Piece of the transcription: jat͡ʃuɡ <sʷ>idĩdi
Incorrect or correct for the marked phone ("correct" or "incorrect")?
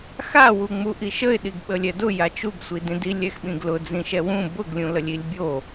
correct